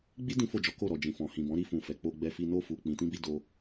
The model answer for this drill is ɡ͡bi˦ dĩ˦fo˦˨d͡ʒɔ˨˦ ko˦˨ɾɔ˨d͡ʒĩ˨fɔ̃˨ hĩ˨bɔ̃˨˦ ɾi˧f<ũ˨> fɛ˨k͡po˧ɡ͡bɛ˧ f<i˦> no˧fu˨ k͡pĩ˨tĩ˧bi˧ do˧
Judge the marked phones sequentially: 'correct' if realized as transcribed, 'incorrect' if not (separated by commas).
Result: correct, incorrect